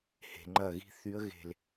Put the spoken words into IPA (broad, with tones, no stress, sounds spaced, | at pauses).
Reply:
h e̤˩ ŋ͡ǃ ɐ˧˩ ɣ i̤˧ θ y˧˥ ə̯ ɣ e̤˧˩ l